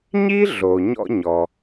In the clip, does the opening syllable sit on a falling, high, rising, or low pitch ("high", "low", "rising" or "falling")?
high